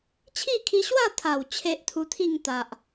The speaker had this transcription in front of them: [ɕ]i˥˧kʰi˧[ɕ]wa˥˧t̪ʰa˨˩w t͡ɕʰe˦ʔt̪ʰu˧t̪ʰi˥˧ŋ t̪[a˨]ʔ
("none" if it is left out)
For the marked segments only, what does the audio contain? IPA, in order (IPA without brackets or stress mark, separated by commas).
t͡ɕʰ, ɕ, a˨